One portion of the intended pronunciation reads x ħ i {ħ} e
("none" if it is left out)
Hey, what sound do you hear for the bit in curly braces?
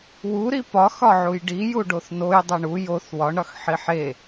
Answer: ħ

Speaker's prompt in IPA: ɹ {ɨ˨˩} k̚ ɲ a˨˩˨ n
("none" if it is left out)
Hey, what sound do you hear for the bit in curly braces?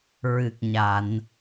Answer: ɨ˨˩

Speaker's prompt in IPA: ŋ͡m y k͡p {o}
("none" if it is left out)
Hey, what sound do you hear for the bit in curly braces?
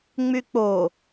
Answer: o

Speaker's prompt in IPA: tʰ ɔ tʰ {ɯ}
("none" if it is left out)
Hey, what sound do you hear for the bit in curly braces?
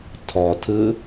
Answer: ɯ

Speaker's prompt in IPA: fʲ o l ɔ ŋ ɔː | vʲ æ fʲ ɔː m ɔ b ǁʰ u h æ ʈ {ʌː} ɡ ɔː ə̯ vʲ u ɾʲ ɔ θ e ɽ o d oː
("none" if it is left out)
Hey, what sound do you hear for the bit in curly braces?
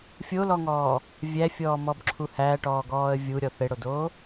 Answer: ɔː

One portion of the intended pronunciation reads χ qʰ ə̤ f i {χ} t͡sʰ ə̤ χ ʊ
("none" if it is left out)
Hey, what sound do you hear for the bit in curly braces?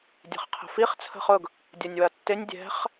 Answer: χ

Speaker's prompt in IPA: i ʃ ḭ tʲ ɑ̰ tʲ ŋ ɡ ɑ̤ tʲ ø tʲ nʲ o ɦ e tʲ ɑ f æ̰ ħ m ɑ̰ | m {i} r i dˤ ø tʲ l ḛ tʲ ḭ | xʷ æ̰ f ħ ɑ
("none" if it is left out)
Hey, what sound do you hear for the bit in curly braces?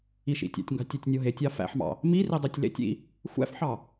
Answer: i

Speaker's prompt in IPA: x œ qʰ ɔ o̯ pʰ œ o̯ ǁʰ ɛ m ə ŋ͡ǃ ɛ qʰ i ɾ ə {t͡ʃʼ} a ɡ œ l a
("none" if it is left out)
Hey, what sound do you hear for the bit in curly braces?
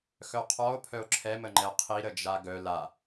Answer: d͡ʒ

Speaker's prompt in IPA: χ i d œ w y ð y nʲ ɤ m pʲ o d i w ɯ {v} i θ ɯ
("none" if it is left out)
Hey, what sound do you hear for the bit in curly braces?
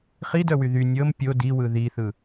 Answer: ð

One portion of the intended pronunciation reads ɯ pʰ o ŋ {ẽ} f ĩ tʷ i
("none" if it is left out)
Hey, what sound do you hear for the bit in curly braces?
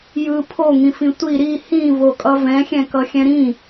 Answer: ĩ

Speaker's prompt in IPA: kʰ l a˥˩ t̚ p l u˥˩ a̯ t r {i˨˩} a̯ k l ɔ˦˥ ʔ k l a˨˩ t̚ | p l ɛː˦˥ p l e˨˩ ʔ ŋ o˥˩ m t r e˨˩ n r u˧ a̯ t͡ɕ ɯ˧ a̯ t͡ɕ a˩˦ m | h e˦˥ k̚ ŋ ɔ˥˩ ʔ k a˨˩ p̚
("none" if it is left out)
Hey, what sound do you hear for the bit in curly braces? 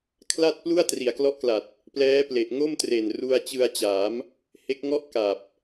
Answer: i˩˦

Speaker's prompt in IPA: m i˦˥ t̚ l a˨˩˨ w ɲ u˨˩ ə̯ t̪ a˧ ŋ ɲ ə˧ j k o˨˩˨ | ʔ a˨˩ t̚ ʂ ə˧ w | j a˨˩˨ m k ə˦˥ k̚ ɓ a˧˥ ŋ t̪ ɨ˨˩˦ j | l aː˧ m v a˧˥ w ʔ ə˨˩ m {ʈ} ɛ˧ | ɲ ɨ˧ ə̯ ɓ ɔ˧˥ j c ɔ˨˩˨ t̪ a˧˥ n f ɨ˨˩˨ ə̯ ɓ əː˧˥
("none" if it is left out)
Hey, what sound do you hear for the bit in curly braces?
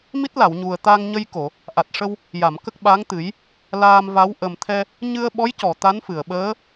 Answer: t̪ʰ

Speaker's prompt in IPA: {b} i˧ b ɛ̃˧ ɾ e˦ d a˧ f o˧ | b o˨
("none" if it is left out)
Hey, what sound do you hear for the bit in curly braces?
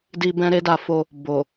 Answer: d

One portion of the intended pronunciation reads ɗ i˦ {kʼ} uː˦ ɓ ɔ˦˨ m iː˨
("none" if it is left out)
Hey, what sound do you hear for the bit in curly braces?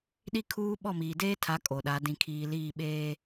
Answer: kʰ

